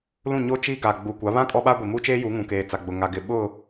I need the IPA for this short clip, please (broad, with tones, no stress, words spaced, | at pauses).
lũ˦˨ɲo˦ t͡ʃiː˦ɡa˨ ɡ͡buː˨kʷa˨˦βã˦ kʼɔ˦ɓa˦ɡʷi˨ mu˦t͡ʃeː˦ju˨˦ŋũ˨ keː˨t͡sa˨ɡ͡bʊ˨ ŋa˨ɡɪ˨ ɓʊ˦˨